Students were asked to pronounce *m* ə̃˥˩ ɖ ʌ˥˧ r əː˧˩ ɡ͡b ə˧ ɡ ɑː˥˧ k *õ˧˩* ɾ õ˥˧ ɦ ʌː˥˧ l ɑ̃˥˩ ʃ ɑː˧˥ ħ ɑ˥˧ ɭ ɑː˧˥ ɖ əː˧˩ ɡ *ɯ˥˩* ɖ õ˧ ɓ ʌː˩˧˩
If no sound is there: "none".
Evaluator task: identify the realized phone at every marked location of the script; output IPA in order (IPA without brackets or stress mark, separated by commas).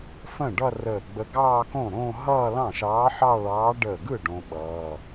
f, õ˥˩, ɯ˥˩